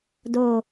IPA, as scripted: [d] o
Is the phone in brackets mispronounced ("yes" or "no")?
no